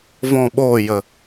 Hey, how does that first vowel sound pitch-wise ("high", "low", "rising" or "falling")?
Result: falling